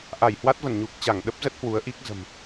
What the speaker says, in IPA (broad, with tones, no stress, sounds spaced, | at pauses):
ʔ a˧˩ j h w a˦˥ t̚ v ə˧˩ n ɲ u˨˩ k̚ t͡ɕ a˧˩ ŋ ɗ ə˦˥ p̚ z ə˦˥ t̚ h w u˨˦ ə̯ ʔ i˦˥ k̚ z ə̤˨˩ m